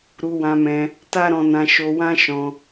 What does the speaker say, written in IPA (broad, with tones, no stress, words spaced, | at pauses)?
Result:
ɾu˧wã˧mɛ̃˧ | ta˦ɾɔ̃˧nã˧ ʃo˧wã˦ʃɔ̃˧